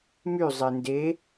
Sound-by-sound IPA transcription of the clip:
my zˤende

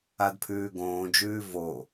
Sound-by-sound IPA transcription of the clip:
adpʰʉːɡõːd͡ʒʉː vo

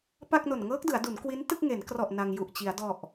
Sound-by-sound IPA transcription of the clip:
pa˥˩k̚no˨˩n ŋɤː˦˥k̚dɯ˩˦a̯du˩˦n kwi˦˥n tɯ˥˩k̚ŋe˩˦nkrɔ˨˩ʔ na˧ŋju˨˩ʔt͡ɕi˩˦a̯ dɔ˨˩ʔ

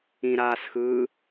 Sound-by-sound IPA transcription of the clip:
ĩɾaːsxɯː

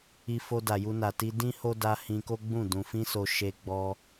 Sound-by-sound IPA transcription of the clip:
i˧fo˧ da˨ju˧na˨ti˧ dĩ˦ho˦ da˧ hĩ˧ko˦ɡ͡bũ˦˨ dũ˨fĩ˧so˨ ʃe˧ɡ͡bɔ˧

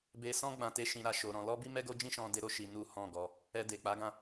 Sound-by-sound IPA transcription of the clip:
be˧sɔ̃˦ ɡ͡bã˧te˦ʃĩ˧ɾa˧ ʃo˨ ɾɔ̃˧ lɔ˦bi˦ mɛ˦ɡo˦d͡ʒĩ˦ʃɔ̃˧ de˦ɾo˦ ʃi˧nu˦ hɔ̃˦˨ɡɔ˧ | ɛ˧de˨k͡pa˨˦ɡã˦˨

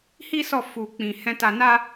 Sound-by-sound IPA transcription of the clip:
hi˦sɔ˦˨ fu˨k͡pĩ˨ hɛ̃˧ta˧na˦

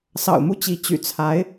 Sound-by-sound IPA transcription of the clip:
sɑ̰˨˩ʊ̯mu˥˩t͡ɕi˧˥ t͡ɕy̰˨˩t͡sʰa˧˥ɪ̯

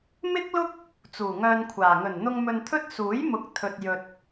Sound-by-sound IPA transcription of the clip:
mɪ˥k̚lʊ˥k̚ | t͡suː˨˩ŋœː˧nkʷʰaː˨˩ ŋɵ˨˩nn̪ʊ˧ŋ mɵ˧nt̪ʰɵ˥t̚ suː˨˥jmʊ˨˥k̚ t̪ʰɵ˨t̚jɵ˨t̚

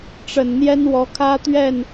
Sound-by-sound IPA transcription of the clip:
ʈ͡ʂə˨˩nn̪jɛ˦n wɔ˨˦kʰä˦t̪ɥɛ˥˨n

